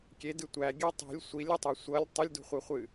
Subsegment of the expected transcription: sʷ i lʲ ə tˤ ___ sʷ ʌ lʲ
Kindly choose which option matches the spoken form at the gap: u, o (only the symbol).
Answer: o